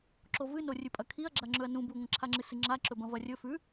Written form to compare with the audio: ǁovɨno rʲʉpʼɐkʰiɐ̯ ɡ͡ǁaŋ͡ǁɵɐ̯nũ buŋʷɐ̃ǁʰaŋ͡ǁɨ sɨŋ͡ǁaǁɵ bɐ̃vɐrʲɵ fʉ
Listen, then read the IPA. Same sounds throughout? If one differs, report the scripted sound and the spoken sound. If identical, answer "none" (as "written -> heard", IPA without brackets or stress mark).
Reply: none